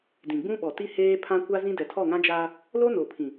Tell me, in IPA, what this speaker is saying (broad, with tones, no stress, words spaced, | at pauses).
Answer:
dĩ˨ɡ͡bũ˦ɓɔ˨ti˦ heː˦ pʰã˦kʷa˦zĩ˦dɛ˨ tʰɔ˦˨ŋã˦d͡ʒaː˦ | lo˦no˨pʰĩ˨